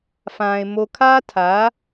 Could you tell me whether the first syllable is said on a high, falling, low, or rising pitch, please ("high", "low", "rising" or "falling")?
low